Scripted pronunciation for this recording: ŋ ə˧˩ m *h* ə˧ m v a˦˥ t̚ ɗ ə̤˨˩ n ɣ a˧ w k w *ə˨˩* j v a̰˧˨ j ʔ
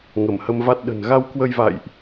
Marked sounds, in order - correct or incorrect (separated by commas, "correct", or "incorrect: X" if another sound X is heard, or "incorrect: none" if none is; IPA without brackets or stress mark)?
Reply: correct, incorrect: ə˧